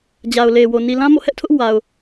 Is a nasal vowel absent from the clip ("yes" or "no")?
no